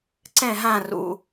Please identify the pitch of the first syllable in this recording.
falling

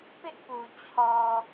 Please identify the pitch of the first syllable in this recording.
high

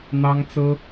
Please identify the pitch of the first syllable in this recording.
high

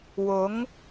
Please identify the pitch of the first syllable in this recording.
rising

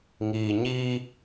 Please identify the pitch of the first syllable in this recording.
low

